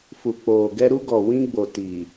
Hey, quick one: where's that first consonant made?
lips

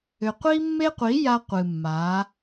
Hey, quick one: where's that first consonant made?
uvula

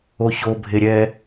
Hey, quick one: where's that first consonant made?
palate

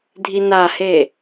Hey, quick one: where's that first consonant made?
tongue tip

